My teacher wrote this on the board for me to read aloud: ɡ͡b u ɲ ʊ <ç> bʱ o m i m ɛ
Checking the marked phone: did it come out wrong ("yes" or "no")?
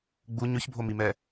no